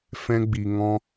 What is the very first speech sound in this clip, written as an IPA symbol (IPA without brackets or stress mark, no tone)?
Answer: f